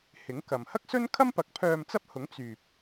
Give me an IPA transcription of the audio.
hɪ˨˥ŋkɐ˨m hɐ˥k̚sɵ˥nkʰɐ˥mpɐ˨˥k̚ pʰœː˧mt͡sɐ˥p̚hʊ˨˥ŋ t͡syː˨p̚

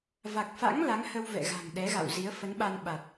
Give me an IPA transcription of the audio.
va˨˩k̚fa̰˧˥ŋ la˨˦ŋhə˧wvɛ̰˧˨ɣa̤˨˩ŋ ɗɛ˨˦ɣa̰˧˨wzi˨˦ə̯ fə˨˦nɓa˧n ɓa˨˩t̚

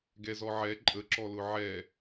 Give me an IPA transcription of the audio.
ɡɛzɔʕɛ ǃʼəǁɔlʊ ʕɛ

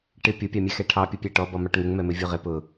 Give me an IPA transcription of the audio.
ʈɪ pʲʊpʲɑmʲɛxɛ ʈʰɑpʲʊpʲæ ʈɔbɔmɑʈ ŋɪŋmɛmɪvʲu ʁɪ pʊ

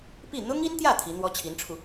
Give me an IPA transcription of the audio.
pi˥˩ n̪ʊ˥ŋi˥nt̪jä˥˩ t̪ʰi˧˥n̪wɔ˥t͡ɕʰi˧˥nʈ͡ʂʰu˧

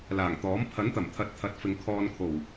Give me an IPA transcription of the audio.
laː˨˩ŋt̪ɔː˨˥m pʰɐ˨˥nt̪ɐ˨˩mt̪ʰɐ˨˥t̚ t̪ʰɐ˨˥t̚fɪ˨˧ŋ kʰɔː˧n kʰo˨˩w

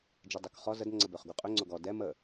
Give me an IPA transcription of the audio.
d͡ʒedˤøkχɔ zəd ŋ͡ǀəbøχɡuqʼø ŋ͡ǀoɡɔ dɛ mə

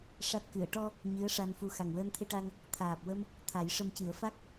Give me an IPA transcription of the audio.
ʂa˦˥t̚ kɨ˨˩˨ə̯ʈɔ˧ | ɲɨ˧˥ə̯ ʂa˧nfu˧ xa˨˩ŋwəː˧nt̪ʰe˧ʈa˧ŋ | t̪ʰaː˨˩p̚wə˧m | t̪ʰa˨˩˦jʂə˧mcɨ˨˩˦ə̯ fa˦˥k̚

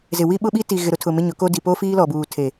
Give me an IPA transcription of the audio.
zɪ˨wi˦ ɓʊ˦ɓi˦ti˨ ɣɪ˨ɾʊ˦tʰʊ˨ mɪ˦ɲʊ˨˦ko˦ di˨po˦fiː˦ lɔ˨buː˨ tʰe˨

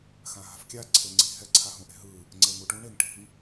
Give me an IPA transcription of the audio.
xãɦa̤fkʲa ǀʰeŋ͡ǀi̤ ɦɛ ǀʰaɦũʔe̤ɦɯ | ŋ͡ǀeŋuʈũ ɳeŋʈi̤ŋ

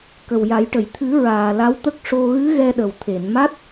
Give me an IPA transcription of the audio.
kə˨˩wja˨˩˦jʈə˨˩˨j t̪ʰɨ˨˩˦ ɹaː˨˩la˧˥wt̪ə˦˥k̚ʂo˧ ɣɨ˧˥ ɣɛ˧ɗə˨˩wt̪ʰe˨˩˨nma˦˥t̚

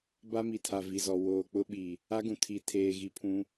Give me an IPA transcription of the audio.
ba˦mi˨tʰa˨ vi˨zɔ˨ woː˨k͡pʊ˦ɓi˨ | a˦ɡũ˨ tʰi˨ tʰeː˨ɣi˨pʰũ˨˦

